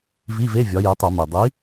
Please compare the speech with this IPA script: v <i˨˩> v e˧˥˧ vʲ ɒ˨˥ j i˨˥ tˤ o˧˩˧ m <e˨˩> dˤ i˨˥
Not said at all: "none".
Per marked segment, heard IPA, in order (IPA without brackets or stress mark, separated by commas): i˧˥˧, e˨˩